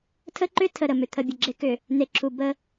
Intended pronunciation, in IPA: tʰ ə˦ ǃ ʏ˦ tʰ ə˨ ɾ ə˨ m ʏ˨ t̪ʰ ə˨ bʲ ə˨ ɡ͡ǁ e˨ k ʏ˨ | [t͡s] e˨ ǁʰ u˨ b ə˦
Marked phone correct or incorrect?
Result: incorrect: n̪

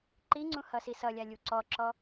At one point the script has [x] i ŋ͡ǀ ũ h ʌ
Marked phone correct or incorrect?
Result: incorrect: ǃ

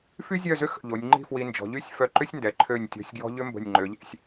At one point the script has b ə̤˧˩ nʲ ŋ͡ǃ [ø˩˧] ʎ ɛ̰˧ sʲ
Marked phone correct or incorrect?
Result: correct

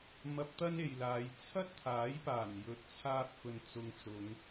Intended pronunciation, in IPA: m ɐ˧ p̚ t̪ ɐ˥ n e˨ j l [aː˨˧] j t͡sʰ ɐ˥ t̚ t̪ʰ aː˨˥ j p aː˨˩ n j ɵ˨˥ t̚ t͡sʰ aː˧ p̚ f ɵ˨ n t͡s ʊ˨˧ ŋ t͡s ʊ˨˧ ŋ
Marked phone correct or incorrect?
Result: correct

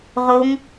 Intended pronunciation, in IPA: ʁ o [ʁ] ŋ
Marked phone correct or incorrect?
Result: incorrect: none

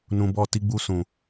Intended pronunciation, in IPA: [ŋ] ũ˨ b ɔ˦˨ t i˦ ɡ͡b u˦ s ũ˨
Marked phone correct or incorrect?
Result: incorrect: n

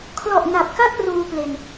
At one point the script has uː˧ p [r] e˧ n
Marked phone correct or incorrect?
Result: incorrect: l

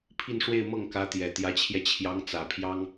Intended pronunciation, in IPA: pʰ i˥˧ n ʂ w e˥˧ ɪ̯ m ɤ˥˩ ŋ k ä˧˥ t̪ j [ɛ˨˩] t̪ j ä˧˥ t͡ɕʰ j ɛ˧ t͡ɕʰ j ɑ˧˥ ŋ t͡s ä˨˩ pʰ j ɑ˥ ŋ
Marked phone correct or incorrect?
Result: correct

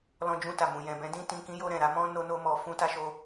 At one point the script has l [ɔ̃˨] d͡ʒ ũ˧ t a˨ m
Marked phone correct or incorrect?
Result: correct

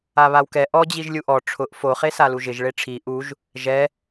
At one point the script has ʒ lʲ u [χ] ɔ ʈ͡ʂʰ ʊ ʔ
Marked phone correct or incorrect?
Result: incorrect: ʔ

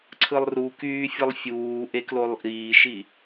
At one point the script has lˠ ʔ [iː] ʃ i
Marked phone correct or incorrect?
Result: correct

